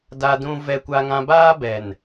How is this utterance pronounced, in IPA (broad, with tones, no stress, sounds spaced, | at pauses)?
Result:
d a˦ d ũ˦ v ɛ˦ kʷ a˦ ŋ ã˦ b aː˦ b ɛ˨ n